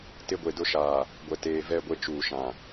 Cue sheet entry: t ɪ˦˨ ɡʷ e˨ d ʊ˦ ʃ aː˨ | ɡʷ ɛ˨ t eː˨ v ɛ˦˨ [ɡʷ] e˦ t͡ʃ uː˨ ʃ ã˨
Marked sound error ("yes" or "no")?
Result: no